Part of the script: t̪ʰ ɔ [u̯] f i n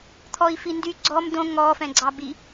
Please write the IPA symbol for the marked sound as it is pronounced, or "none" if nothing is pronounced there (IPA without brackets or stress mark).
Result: i̯